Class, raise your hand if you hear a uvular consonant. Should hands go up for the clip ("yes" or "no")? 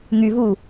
no